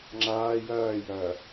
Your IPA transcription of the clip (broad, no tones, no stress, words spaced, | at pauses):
ŋ͡ǁaː jɐːjɐː